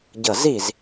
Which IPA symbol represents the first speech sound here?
ɟ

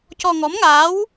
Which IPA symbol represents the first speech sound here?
c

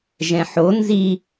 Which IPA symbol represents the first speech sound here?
ʒ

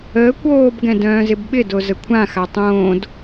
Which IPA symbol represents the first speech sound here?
əː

